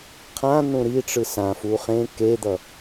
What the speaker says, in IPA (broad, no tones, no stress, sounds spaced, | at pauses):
qʰ ã n̪ ũ ɾ i ʈ͡ʂ ɯ s ã f u χ ẽ k e d̪ ʌ